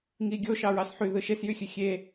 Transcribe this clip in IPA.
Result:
ŋ i ɡʲ o ʃ ɑ ɹ ɑ s ħ y ð ɯ ʃ e s j y xʲ ø xʲ e

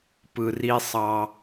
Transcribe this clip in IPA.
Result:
p ɯ˨ r i˦ sˤ ɑ˦

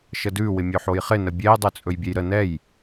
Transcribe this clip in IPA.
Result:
ʃ ə d ʉ w ɪ mʲ ɵ ħ o j χ ɪ n ə bʲ ɛ j dˤ ʉ t͡sʼ ɵ j bʲ ɛ j ɾ ə n ɛ j

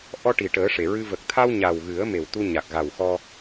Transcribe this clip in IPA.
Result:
ʔ ɔ˧ ʈ i˨˩ ʈ əː˨˩˦ ʂ e˨˩˨ ɹ ɨ˧ v ə˨˩ k̚ t̪ʰ a˧ w ɲ a˨˩ w ɣ ɨ˨˩˦ ə̯ m e˨˩ w t̪ u˧ ɲ a˨˩ k̚ ɣ a˨˩ w x ɔ˧

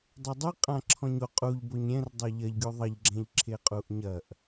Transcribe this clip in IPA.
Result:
dˤ ɛ dˤ ɨ qʼ ã ǁʰ ɔ̃ ɲ o qʼ u ʎ b o ɲ ɾʲ ɛ̃ r dˤ o ʎ ɐ ʎ ɡʲ u ðˤ ɐ ʎ ɡ͡ǁ ɛ̃ ʎ ǁʰ e qʼ u ʔ ɲ ɐ ʔ

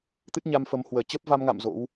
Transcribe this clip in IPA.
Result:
t̪ ɨ˦˥ t̚ ɲ a˧ m f ə˨˦ m h w əː˧˩ t͡ɕ ə˦˥ p̚ v a˧ m ŋ a̰˧˨ m z o̰˧˥ w

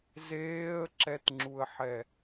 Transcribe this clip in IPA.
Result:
z eː ə̯ ǁ ɛ t ŋ͡ǁ u ə̯ ħ ɛ

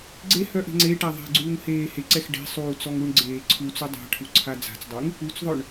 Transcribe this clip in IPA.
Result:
ɡ͡ǀ e h œ ʔ e̤ ŋ͡ǀ e ʈ a ðˤ ɛ̤ ɡ͡ǀ uː ŋ h eː h e ǀ ɛ x ɖ e̤ sˤ uː t͡s ɔ ŋ u ɳ ɡ͡ǀ eː ǀʰ u t͡s u dˤ a̤ ʈʰ u ǀʰ a d͡z a̤ t͡s dˤ y ŋ | u t͡s ðˤ œ ɳ

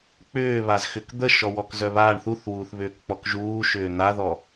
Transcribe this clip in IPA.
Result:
k͡p ʏː β a z x ʏ k d̪ ə ʃ ɔ w ɔ k z œ β aː ɳ θ u θ w uː θ β ʏː k k͡p ɔ k ʒ uː ʃ ʏː n̪ a ð ɔ

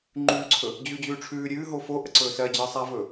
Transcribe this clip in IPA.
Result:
ŋ͡ǃ ʉː ǀʰ ɵ | d͡ʑ ʉː d͡ʑ ʉː ʈ͡ʂʰ ʉː ɾʲ ʉː ɦ o f o ʔ ə ǀ ɵː s ɜ d͡ʑ ɜ sˤ a v ɵ

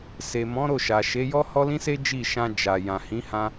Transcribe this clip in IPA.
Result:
s e˨ m ɔ̃˨˦ ɾ o˦˨ ʃ a˨ ʃ e˨˦ j ɔ˦ h ɔ˦ l ĩ˦ s e˦ d͡ʒ i˦˨ ʃ ã˧ d͡ʒ a˨ j ã˨ h ĩ˨˦ h ã˧

